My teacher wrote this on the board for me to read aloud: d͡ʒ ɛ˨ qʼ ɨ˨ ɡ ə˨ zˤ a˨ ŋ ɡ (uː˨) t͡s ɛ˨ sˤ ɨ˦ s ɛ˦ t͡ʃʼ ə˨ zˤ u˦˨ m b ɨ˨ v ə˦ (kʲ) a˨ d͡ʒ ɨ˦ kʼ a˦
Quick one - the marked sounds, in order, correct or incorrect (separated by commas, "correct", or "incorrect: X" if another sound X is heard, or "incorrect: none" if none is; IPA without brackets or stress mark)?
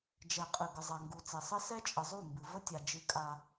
incorrect: u˨, incorrect: tʲ